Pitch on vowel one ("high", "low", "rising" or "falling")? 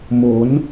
rising